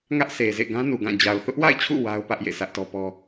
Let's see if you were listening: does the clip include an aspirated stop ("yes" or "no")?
yes